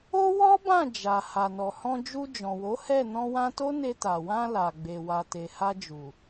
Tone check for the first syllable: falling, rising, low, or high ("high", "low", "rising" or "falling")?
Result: high